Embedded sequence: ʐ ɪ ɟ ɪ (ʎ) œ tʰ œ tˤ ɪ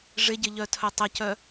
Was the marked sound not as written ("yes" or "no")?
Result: no